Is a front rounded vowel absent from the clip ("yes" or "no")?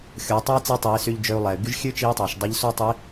no